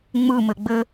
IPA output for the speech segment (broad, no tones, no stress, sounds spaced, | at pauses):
ŋ͡m ɯ m ɘ ɡ͡b ɘ